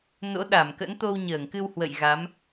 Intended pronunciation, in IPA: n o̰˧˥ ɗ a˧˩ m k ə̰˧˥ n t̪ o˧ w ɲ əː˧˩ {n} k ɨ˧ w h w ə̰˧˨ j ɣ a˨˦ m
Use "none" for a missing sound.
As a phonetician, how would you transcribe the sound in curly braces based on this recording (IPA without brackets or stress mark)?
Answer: ŋ